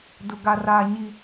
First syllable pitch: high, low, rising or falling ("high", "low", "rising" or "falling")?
low